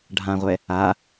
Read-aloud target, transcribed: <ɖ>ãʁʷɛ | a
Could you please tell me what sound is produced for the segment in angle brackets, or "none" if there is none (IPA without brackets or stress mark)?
ɖʱ